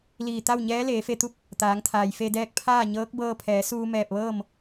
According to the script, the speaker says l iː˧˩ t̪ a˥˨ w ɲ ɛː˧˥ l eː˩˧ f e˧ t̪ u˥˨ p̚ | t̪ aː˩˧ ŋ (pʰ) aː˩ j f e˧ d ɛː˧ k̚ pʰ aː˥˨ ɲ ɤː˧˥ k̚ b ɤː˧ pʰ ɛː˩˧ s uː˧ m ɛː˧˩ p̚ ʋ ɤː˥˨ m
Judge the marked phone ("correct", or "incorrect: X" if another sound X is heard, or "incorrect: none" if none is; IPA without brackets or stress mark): incorrect: t̪ʰ